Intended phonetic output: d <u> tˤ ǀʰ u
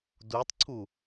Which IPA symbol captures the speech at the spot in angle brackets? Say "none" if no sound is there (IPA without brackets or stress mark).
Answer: u